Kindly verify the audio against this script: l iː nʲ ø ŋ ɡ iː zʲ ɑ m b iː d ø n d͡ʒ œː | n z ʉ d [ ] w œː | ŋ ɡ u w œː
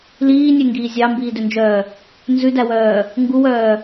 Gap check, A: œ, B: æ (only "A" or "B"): B